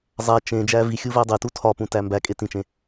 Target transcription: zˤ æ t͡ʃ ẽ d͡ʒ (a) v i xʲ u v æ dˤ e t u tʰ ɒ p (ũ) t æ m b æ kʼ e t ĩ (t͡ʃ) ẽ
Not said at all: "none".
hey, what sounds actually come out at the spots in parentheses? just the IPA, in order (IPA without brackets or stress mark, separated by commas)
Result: æ, ũ, t͡ʃ